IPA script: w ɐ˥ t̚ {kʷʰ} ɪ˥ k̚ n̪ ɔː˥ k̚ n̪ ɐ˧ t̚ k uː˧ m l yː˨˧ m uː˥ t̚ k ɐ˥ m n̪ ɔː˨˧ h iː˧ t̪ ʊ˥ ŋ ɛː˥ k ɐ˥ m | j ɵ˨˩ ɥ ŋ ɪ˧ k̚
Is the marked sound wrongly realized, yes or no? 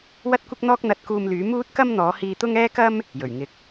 yes